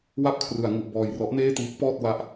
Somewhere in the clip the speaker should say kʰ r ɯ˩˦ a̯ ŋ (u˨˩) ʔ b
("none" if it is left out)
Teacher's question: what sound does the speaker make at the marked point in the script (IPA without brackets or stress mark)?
u˨˩